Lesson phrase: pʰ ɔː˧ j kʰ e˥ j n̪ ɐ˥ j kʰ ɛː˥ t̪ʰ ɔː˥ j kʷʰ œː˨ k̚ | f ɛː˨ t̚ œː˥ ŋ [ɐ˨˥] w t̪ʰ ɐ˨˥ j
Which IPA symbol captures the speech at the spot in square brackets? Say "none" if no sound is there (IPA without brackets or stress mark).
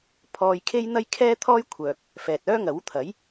ɐ˨˥